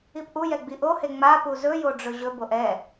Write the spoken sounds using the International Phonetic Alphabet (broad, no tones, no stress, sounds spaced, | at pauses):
i p ʔ u j ɛ ɡ͡b i ʔ o h e ŋ͡m a p u z ɵ j o ɖ͡ʐ ɵ ʑ ɵ b o ʔ ɛ